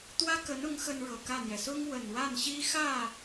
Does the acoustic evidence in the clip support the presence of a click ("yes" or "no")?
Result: no